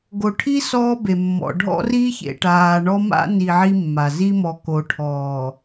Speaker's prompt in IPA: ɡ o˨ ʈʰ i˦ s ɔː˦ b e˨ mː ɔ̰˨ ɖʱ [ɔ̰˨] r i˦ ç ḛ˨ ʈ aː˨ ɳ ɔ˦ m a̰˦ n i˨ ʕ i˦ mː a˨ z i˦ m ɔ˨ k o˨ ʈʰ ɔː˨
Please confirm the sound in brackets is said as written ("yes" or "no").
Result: no